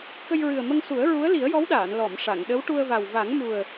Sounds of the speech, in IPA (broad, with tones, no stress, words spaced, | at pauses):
kə˧jɹɨ˨˩ə̯mə˧ŋsu˨˩˦ə̯ ɹu˧˥ə̯li˨˩˦ə̯jɔ˧˥wɗaː˨˩˨n lɔ˨˩˨mʂa˨˩˨ŋɗə˧˥w ʈu˧ə̯va˨˩w va˨˩˦ŋmu˨˩ə̯